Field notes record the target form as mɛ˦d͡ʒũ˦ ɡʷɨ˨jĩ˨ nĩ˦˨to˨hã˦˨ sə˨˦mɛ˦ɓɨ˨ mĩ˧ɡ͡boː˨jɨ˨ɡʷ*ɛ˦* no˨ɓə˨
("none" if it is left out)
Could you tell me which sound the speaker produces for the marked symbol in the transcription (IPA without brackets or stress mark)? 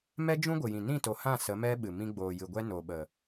ɛ˦